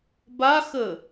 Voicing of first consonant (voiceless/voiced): voiced